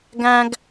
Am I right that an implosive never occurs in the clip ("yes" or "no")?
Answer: yes